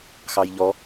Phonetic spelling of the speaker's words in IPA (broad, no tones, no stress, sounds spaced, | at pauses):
x ɑ j ʎ ɔ